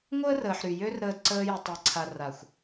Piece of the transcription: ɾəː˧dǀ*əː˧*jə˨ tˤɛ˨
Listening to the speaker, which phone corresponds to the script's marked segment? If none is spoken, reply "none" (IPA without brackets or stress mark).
əː˧